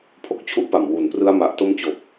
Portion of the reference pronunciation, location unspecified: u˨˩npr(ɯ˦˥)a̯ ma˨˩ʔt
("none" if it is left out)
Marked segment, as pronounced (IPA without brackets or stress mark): ɯ˦˥